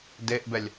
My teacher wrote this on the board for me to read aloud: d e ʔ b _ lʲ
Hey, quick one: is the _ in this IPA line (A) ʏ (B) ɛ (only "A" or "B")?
B